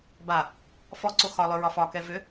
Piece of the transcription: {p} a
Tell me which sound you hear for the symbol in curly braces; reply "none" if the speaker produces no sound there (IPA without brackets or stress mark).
b